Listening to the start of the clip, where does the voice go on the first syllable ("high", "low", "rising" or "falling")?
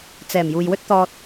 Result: low